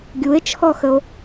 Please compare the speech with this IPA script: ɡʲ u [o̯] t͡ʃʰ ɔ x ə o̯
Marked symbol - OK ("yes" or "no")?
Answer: no